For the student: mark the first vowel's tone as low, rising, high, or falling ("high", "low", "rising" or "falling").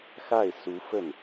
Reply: falling